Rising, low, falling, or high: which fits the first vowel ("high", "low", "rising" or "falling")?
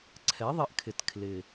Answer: rising